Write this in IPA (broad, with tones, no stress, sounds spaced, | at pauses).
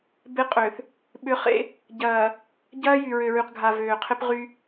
b e˦ qʼ ø˨ θ | ɓ ʏ˨˦ χ ḛ˦ | ɟ ɐː˨ | ɟ ɐː˦ j y˨ ɹ ø˨ ɹ y˨ q ɡʱ a˨ v øː˨ qʰ ɪ˦ p ʁ y˦